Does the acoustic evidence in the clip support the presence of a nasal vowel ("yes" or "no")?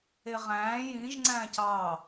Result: yes